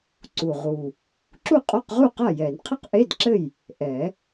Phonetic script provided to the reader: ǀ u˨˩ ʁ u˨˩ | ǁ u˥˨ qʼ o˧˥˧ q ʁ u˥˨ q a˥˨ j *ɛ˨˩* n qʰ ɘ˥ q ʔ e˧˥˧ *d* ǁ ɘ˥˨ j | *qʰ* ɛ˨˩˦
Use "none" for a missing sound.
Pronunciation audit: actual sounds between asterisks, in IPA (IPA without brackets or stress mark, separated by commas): ɛ˨˩˦, d, ʔ